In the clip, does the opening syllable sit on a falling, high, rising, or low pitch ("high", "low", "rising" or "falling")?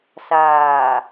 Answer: low